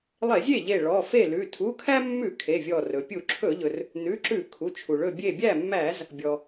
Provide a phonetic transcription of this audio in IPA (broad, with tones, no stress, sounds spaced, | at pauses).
lˠ e˧˩˧ zʲ e˥˩ ʎ e˧˩ ɭ ɔ˩˧˩ f e˥˩ l ʉ˩˧˩ tʰ u˩˧˩ kʰ æ˦ mː ʉ˧˩˧ kʰ e˩˧˩ vʲ ɔ˧˩ r ɵ˩ pʲ u˧˩˧ ǁʰ ɵ˧˩˧ ʎ ɵ˩ r | n ʉ˩˧˩ ǁ ʉ˧˩˧ kʰ u˩˧˩ t͡ʃʰ u˩ ɭ ɵ˧˩ bʲ e˧˩ bʲ æ˥˩ mː æ˧˩˧ z | bʲ ɔ˩